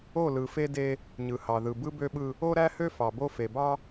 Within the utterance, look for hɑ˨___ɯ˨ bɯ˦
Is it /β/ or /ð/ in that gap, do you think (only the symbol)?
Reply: ð